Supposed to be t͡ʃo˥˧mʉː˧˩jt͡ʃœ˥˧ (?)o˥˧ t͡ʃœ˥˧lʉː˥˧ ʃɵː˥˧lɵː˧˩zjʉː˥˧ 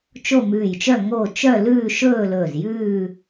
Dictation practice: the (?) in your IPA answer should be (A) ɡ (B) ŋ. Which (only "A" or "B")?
B